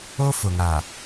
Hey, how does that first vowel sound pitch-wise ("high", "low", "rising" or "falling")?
high